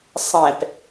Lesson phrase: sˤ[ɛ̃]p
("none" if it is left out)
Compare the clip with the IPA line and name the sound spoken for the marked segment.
ɛ̃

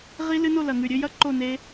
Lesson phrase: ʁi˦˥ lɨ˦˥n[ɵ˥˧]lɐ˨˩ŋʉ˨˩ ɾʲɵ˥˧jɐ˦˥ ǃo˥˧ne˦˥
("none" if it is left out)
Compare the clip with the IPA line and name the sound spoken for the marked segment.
o˥˧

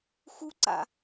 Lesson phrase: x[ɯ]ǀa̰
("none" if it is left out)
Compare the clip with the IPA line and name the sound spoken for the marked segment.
u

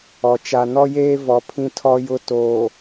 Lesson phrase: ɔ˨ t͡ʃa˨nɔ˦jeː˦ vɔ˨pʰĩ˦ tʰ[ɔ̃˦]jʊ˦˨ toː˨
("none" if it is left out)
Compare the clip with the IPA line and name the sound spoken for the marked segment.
ɔ˦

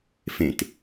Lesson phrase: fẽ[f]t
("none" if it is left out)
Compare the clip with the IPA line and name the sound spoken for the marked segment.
none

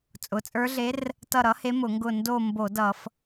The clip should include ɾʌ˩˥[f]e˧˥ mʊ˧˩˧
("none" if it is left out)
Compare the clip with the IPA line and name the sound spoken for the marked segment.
h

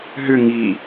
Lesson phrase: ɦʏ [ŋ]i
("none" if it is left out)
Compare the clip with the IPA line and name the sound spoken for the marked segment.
ŋ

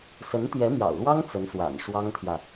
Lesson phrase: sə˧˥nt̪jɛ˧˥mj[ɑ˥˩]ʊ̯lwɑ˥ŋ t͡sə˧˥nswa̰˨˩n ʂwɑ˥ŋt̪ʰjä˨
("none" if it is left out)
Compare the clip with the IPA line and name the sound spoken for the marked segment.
ɑ̰˨˩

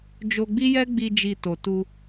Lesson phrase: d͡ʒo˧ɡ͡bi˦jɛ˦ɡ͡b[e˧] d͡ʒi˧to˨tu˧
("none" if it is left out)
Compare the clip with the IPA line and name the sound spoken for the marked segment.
i˧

